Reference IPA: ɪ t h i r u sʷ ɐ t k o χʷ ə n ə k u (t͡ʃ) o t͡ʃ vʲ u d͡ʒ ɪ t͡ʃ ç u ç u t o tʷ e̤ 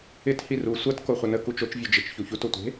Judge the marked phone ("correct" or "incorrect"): correct